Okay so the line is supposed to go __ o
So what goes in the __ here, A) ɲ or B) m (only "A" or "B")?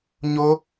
A